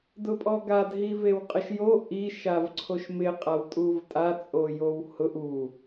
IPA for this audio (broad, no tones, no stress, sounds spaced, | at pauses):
d ʊ pʼ ɔ ɡ a d ɦ i v e w qʼ ɪ ʃ j o ʔ i ʃ a v ǀʰ o ʃ m ɪ qʼ a w tʼ u v tʼ a t͡sʼ o j o w h ʊ ʔ u